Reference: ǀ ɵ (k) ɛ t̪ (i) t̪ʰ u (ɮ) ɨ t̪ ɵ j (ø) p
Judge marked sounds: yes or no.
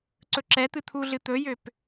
no, no, yes, yes

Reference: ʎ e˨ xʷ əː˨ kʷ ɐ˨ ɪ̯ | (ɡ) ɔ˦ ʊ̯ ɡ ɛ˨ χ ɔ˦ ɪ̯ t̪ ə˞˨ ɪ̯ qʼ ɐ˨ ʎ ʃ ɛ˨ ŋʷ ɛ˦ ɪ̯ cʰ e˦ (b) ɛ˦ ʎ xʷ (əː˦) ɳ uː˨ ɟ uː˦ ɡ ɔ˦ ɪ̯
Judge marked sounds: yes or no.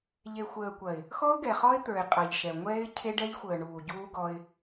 no, no, no

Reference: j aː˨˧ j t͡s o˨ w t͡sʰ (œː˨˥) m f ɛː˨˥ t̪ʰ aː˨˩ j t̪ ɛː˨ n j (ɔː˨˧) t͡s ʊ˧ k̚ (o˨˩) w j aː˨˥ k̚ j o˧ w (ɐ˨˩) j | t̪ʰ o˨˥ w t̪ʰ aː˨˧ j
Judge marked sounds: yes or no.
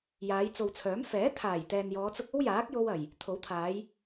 yes, yes, no, yes

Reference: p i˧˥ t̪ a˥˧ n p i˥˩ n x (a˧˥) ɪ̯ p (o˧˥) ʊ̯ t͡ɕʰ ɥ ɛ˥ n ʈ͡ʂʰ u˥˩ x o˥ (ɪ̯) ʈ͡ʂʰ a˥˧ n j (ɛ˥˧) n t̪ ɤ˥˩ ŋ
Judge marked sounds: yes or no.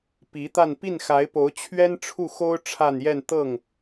yes, yes, no, yes

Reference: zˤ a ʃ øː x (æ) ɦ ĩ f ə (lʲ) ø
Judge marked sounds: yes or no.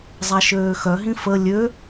no, yes

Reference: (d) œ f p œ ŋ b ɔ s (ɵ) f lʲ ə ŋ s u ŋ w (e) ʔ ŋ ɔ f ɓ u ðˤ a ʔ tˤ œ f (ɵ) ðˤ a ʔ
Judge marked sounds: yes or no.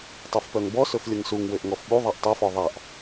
no, yes, no, no

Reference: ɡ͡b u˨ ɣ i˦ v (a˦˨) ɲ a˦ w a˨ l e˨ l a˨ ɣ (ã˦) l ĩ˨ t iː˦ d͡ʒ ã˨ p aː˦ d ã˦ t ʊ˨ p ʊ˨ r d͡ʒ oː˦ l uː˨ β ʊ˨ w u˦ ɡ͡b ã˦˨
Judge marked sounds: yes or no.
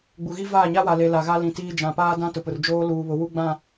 no, no

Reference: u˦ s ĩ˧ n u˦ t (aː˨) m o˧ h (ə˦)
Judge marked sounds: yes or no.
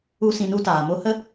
yes, yes

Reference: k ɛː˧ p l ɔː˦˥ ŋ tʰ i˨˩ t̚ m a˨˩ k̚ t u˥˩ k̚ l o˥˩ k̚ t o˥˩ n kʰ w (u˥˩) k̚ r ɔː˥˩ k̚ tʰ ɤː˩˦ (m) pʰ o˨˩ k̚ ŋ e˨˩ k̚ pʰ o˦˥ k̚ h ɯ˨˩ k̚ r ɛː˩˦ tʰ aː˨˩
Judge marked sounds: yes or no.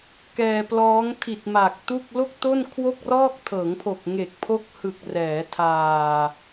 no, no

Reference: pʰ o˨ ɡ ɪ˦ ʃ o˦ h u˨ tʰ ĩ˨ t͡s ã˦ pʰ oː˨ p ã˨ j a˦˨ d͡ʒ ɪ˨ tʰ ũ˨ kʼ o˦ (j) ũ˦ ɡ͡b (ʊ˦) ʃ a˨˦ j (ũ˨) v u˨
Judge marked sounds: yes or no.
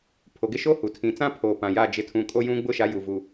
yes, yes, no

